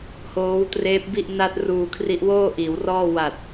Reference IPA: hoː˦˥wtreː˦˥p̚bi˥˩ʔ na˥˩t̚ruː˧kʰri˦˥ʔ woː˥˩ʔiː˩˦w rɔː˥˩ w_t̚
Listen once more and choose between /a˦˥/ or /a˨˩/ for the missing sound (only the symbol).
a˨˩